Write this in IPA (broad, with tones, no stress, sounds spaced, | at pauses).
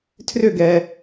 tʰ r ʏ˥˩ ɡ ɛ˩